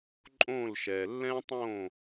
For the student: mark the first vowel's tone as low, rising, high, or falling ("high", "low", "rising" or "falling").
falling